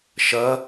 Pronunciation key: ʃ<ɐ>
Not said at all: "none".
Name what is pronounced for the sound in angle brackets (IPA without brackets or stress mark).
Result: ɐ